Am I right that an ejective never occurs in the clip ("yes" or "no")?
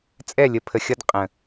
no